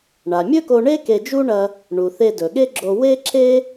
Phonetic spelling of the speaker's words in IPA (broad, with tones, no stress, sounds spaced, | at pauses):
ɳ a˩ mʲ ɵ˥ k o˧ ɳ e˥ k e˧ d͡ʒ u˥ ɳ ɐ˧ | ɳ u˩ θ e˧ d ɵ˩ ɠ e˥ ɡ͡ǁ o˧ w e˥ ǁ e˥